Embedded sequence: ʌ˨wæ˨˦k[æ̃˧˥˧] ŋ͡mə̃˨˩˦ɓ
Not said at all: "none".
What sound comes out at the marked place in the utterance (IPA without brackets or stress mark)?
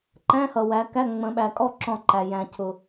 æ˧˥˧